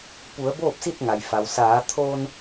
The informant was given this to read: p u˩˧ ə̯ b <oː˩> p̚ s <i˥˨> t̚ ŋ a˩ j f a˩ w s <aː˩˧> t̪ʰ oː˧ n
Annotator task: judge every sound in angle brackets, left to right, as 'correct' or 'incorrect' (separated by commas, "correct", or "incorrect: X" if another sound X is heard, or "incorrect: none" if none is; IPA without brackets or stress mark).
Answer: incorrect: oː˥˨, correct, correct